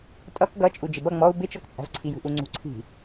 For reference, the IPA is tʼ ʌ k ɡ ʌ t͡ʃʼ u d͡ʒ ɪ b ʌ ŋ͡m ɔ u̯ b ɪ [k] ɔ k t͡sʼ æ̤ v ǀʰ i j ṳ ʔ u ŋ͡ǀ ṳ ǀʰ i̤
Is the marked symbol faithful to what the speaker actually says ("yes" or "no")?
no